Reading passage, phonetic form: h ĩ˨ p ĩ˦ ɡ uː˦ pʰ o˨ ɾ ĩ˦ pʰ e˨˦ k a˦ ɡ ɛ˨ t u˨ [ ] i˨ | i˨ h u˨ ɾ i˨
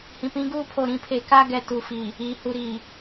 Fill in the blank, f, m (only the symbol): f